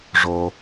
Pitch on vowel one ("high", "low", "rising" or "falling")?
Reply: low